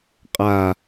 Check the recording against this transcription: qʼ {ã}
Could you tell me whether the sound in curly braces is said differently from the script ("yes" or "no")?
yes